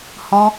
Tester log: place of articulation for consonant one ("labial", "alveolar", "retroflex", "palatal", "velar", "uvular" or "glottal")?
glottal